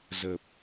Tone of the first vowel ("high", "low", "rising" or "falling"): low